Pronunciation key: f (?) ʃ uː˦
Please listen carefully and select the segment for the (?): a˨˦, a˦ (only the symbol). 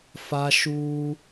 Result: a˦